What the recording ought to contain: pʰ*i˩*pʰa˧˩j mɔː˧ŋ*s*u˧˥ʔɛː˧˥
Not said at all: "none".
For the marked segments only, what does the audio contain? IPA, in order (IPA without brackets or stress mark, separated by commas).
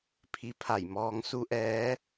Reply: i˧, s